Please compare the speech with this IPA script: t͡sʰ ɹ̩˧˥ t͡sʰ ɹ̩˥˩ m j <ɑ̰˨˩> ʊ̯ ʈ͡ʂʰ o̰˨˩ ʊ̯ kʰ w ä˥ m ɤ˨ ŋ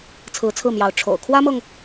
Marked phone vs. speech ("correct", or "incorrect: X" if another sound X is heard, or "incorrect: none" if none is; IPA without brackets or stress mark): incorrect: ɑ˧˥